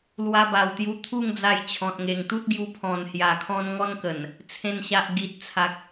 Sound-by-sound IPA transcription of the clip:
l w a˧ b a˨˩ w t̪ j u˧ t̪ʰ u˥˧ ŋ d͡z a˧ j t͡ɕʰ ɔ̃˨ t̚ ŋ e˨˩ ŋ t̪ u˦ t̚ ɡ j u˧ pʰ ɔ̃˨˩ n h j a˨˩ kʰ ɔ̃˧ n ŋ ɔ˦ n k ə˨˩ n | t͡sʰ ẽ˨˩ n ɕ a˨ ʔ ɡ i˨ t̚ t͡sʰ a˨ k̚

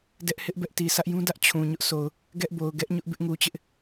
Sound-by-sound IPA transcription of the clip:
d ɛ˦ ʔ h ɪ˦ ʔ b ɛ˦ ʔ t i˨ sʰ ä˦ ʔ j ũ˦ d ä˦ ʔ t͡ɕʰ ũ˨ ɲ ʊ˦ ʔ s o˨ ʊ̯ | ɡ ɛ˦ ʔ b o˨ ʊ̯ ɡ ɛ˦ ʔ ɲ ʊ˦ ʔ b ɪ˦ ʔ ŋ u˨ t͡ɕ ɪ˦ ʔ

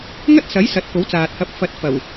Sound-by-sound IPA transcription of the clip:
ŋ ɐ˥ t̚ s ɐ˨˥ j s ɐ˨˥ t̚ k o˨˥ w t͡s aː˨ t̚ h ɐ˨˥ p̚ f ɐ˨˥ t̚ f ɐ˨˩ w

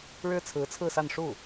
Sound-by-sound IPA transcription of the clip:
ɻ ɻ̩˥ t͡sʰ ɹ̩˧˥ t͡sʰ ɹ̩˥˧ s a˥˧ n ʂ u˥˩

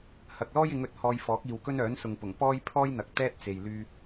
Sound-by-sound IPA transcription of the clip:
h ɐ˨ k̚ l ɔː˥ j ɪ˨˧ ŋ ɵ˨˥ t̚ h ɔː˧ j f ɔː˨˥ k̚ iː˨ w k ɵ˥ n œː˨˥ n s ʊ˨ ŋ p ʊ˨˩ ŋ p ɔː˥ j pʰ ɔː˥ j n̪ ɐ˨ k̚ t̪ ɛː˥ t̚ t͡s e˨ j l yː˧

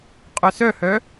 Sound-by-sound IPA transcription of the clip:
qʼ œ s œ h œ

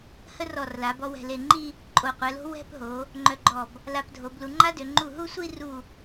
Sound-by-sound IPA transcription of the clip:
h ə˥ r ɔ˧˩ r l a˩˧ b ɔ˧ w ɛ̤˧˩ l e˧˩ ŋ͡ǃ i˥˧ | ǃʼ o˧˩ qʷ ɛ˩˧ l o̤˥ w ɛ̤˥˧ p ɦ o˩˧ | ŋ͡ǃ œ˧ ɡ͡ǃ ɔ˧˩ b | l a˧ p dʱ o˩˧ b l u˩˧ ŋ͡ǃ a˥ d ø˩˧ ŋ͡ǃ u˧˩ ɦ u˥˧ sʷ i˥˧ r u˧˩

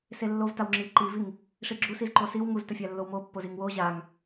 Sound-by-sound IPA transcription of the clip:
s e lː o v t a w ŋ͡ǁ i ǃ i v i ŋ | ʂ i ɡ͡ǁ u s i z ǃ o s i w ŋ u z t ɵ fʲ a lː o w m o pː o z i ŋ w o ʑ a ŋ

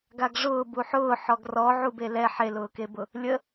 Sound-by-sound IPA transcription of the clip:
ɡ a ɡ ʐ ʊː b u ħ ʊː ħ ɔ ɡ r ɔ ʕ u b e l ɛ ħ e l ʊː k e b ʊ | lʲ ə

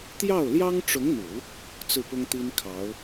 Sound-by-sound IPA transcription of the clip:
t̪ j ɑ˥˩ ʊ̯ l j ɑ˥ ŋ ʈ͡ʂ ʊ˧˥ ŋ n̪ u˨˩˦ | t͡s ɹ̩˥˩ p ʊ˥ ŋ t̪ i˥ n kʰ ɑ˧˥ ʊ̯

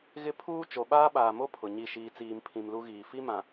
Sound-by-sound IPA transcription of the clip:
ɣ ɪ˦ pʰ uː˦ t͡ʃ o˨ ɓ aː˦ ɓ aː˨ m o˦ pʰ ʊ˨ ɲ i˦˨ ʃ iː˨ t͡s iː˨ m pʰ ĩ˨ m l u˦ ɣ iː˨ f i˦ m ã˨

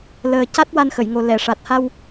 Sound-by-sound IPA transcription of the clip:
l əː˨˩ c a˦˥ t̚ w a˧ n x ə˨˩˨ j ŋ o˨˩ l ɛ˨˩˨ ʂ a˨˩ t̚ h a˧ w

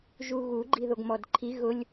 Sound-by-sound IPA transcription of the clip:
ʒ u ɣ u ɡ͡ǃ i ð o ɡ m ɔ d ǃʰ i ɣ ʊ lʲ

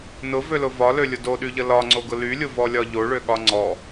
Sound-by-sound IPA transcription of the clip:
n ʊ v ø l ʊ v ɒ l ø lʲ ʊ d o ɗ y ʎ ə l ɒ ŋ͡ǀ o ɡ ʊ l y lʲ ʊ v ɔ lʲ ɒ ʎ o ɭ ø ɠ ɒ ŋ͡ǀ ɔ

